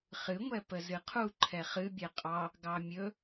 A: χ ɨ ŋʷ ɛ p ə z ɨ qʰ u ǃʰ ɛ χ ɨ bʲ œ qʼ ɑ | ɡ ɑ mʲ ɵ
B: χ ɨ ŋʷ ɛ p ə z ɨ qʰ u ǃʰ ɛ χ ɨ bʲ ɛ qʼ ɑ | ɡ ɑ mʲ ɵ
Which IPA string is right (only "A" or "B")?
B